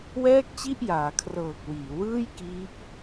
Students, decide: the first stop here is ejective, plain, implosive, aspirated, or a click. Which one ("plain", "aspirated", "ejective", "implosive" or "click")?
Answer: plain